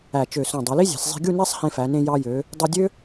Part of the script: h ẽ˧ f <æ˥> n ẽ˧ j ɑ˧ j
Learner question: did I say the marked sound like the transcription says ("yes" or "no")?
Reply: no